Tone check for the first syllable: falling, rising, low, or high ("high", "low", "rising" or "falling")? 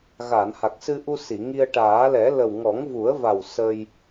low